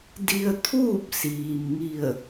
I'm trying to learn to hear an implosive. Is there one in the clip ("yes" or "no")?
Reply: no